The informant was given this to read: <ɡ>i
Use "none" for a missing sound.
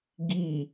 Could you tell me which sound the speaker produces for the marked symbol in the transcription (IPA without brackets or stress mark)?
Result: ɡ